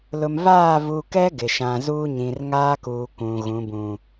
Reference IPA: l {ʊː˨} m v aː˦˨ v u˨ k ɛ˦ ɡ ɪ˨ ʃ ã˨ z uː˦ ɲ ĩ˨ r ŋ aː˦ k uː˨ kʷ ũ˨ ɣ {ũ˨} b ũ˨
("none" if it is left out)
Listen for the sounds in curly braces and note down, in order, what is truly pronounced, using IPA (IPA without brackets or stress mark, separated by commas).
ʊ˨, ũ˨˦